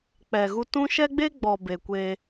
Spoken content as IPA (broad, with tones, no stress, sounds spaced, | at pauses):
k͡p ɛ˨ ɣ u˧ t ũ˦ ʃ ɛ˦ ɡ͡b e˦ ɡ͡b ɔ˨ b e˨ kʷ e˧